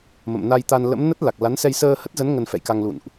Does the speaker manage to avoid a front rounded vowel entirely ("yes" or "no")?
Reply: yes